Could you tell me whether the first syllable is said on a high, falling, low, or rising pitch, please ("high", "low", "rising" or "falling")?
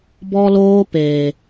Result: high